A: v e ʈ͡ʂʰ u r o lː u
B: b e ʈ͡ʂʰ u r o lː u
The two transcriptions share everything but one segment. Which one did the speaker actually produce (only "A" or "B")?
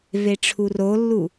A